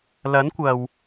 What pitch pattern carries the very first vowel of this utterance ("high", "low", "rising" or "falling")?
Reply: rising